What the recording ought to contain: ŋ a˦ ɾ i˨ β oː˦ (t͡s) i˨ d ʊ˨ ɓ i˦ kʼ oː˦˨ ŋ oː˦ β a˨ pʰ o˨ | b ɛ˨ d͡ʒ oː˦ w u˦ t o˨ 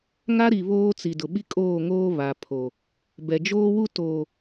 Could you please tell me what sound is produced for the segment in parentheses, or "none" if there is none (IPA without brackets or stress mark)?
t͡s